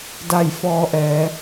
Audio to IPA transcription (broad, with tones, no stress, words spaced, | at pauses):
da˥˨j fɔː˧ʔɛː˩˧